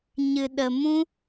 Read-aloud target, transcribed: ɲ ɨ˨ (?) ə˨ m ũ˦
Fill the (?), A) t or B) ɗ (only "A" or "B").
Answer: B